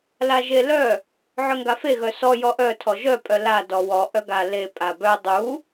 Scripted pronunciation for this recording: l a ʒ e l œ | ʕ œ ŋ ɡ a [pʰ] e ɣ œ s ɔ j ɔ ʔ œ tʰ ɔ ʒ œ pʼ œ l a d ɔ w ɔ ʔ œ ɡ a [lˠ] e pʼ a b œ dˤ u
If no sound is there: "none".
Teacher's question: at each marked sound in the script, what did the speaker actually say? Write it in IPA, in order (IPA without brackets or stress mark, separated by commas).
f, l